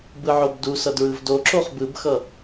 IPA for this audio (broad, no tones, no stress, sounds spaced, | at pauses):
b ɯ ʕ o b d u s ʌ d ɹ ɯ v d o ǁ o χ b ɯ b x ʌ